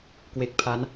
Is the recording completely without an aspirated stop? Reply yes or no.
no